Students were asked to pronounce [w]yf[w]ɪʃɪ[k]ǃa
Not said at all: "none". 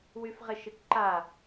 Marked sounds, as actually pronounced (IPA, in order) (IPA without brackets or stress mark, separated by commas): w, ʁ, k